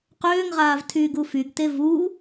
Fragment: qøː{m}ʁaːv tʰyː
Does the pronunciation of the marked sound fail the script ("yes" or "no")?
yes